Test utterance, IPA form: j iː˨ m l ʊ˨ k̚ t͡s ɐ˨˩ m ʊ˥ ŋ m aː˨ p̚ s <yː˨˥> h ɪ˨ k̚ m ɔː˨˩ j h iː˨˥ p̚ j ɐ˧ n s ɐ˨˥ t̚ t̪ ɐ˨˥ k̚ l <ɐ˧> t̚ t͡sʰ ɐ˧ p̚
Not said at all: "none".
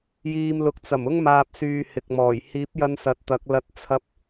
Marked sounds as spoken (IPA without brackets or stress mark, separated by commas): yː˨, ɐ˧